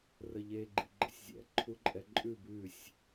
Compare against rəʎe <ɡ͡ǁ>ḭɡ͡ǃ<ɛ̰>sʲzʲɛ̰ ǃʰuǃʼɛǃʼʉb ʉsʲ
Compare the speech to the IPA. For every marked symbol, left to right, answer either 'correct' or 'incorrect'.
incorrect, incorrect

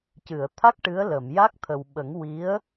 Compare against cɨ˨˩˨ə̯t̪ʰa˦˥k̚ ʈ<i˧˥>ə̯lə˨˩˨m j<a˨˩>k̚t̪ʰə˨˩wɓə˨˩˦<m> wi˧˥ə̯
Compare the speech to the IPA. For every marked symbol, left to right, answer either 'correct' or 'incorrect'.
incorrect, incorrect, incorrect

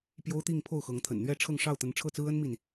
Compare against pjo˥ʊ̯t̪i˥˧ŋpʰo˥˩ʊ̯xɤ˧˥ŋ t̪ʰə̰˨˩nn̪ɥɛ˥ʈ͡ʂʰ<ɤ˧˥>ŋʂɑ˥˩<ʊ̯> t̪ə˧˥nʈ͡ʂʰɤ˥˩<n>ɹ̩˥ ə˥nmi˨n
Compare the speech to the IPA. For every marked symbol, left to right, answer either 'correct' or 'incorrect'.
incorrect, correct, incorrect

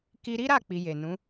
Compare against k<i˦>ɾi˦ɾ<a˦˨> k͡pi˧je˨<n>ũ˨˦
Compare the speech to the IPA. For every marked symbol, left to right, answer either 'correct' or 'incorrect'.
incorrect, correct, correct

